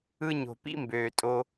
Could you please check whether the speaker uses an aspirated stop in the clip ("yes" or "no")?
no